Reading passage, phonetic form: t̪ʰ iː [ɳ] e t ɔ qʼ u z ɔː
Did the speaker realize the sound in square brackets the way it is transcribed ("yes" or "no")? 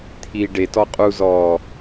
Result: no